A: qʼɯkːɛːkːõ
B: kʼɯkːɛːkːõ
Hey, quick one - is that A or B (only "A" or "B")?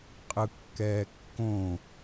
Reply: A